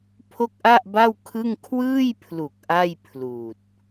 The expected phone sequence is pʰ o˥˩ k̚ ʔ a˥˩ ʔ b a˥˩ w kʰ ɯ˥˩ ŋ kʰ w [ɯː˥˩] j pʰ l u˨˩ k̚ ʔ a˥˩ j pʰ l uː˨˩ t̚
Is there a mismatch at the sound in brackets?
no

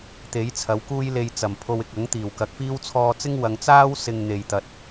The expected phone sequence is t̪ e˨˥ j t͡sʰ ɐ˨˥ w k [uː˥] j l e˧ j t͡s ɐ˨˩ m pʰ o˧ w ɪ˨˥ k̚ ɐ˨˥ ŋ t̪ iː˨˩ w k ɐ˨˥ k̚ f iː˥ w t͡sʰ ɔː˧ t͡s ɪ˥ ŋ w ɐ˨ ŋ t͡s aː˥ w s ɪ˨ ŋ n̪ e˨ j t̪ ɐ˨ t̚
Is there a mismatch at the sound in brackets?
no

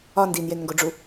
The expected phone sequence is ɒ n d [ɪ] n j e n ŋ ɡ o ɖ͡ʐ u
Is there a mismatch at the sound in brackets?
yes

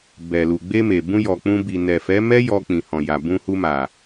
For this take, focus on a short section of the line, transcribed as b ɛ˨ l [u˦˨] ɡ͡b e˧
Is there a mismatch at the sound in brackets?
yes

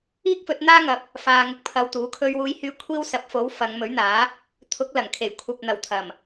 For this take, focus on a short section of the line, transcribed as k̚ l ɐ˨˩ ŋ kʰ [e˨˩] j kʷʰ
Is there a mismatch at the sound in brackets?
no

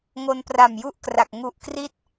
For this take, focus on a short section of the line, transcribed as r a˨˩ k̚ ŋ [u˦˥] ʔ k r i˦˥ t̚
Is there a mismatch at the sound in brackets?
yes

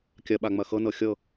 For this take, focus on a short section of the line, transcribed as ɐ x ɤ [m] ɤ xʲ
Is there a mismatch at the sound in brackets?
yes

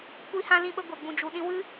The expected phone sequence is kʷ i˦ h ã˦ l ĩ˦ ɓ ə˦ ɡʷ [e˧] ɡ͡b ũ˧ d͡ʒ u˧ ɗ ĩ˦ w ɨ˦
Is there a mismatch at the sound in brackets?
no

